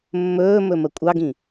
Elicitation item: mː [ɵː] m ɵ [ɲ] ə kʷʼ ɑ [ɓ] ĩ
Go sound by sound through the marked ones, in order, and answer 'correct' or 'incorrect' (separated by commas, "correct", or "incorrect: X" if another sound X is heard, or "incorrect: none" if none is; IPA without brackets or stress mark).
correct, incorrect: m, incorrect: ɡ